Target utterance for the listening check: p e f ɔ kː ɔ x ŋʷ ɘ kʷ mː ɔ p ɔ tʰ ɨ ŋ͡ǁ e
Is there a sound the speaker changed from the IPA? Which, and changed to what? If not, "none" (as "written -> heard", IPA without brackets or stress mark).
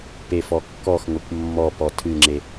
none